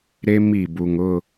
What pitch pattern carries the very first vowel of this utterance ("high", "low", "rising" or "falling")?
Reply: high